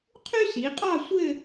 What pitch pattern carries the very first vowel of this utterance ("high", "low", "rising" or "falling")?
high